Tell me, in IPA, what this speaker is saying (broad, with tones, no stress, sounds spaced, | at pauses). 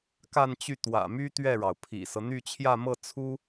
k a˥˧ n t͡ɕ y˥˩ t̪ w ä̰˨˩ m y˥ t̪ ɥ ɛ˥˩ ɻ ɑ˩ ʊ̯ pʰ ḭ˨˩ s ɤ˦ n̪ y˥˧ t͡ɕʰ j ä˥˧ m ɤ˥˩ t͡sʰ u˥